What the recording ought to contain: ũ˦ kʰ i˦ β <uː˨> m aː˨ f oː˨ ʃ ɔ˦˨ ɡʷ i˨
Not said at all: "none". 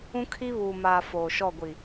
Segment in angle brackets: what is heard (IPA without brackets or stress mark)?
uː˨